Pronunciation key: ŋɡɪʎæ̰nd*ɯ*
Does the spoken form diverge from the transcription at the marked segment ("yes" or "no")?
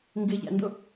yes